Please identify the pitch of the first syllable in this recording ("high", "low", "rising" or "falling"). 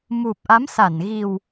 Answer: low